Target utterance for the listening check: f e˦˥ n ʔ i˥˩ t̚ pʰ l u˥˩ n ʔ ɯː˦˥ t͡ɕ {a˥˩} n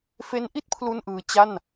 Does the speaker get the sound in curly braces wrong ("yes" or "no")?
no